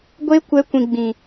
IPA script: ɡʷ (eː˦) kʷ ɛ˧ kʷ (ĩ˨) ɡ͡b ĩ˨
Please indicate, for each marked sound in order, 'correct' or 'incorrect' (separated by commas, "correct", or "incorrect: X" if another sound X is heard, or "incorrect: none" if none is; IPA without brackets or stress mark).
incorrect: e˦, correct